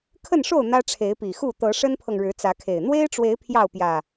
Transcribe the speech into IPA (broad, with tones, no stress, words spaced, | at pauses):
kʰə˥˨nʂo˥˨ʊ̯ n̪ä˦ʈ͡ʂʰe˨˦ɪ̯pi˨˩xu˥˨ t̪ɤ˨˦ʂə˦npʰɤ˨ŋ ɻɻ̩˨˦t͡sä˨˦kʰe˨˩ɪ̯ n̪we˦ɪ̯ʈ͡ʂwe˨˦ɪ̯ pʰjɑ˥˨ʊ̯pjä˨˩